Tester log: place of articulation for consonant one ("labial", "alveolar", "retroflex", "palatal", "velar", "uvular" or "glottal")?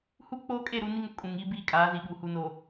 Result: glottal